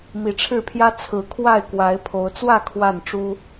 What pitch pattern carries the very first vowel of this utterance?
rising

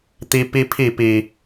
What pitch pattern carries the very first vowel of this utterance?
high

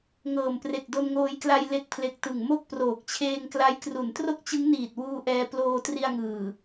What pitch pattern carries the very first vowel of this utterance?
low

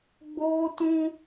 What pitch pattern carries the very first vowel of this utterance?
high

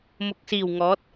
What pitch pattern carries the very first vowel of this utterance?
low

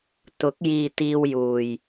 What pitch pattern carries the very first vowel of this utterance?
rising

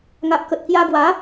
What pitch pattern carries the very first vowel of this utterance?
low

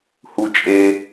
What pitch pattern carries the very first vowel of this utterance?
low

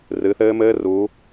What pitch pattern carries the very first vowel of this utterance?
rising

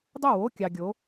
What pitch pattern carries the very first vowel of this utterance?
falling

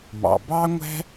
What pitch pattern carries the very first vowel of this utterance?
low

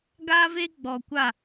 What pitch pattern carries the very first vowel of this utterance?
high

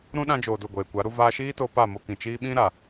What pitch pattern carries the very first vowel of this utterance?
high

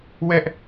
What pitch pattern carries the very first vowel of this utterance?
high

